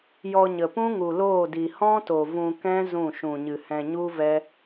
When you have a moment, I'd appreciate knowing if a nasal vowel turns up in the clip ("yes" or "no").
yes